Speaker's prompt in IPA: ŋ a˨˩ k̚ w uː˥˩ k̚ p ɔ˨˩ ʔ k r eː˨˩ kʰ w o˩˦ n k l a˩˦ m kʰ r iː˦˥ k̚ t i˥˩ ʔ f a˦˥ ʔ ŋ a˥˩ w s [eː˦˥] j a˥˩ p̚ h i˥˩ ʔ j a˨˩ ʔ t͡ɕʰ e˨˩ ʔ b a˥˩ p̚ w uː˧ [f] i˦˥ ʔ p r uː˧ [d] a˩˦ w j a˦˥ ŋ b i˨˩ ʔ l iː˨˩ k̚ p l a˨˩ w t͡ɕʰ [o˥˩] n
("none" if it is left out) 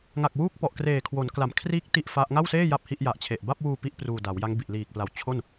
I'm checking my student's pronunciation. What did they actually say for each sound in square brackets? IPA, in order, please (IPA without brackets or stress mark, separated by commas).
eː˥˩, p, d, o˥˩